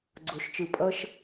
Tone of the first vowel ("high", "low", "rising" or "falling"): low